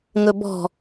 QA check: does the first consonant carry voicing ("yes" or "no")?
yes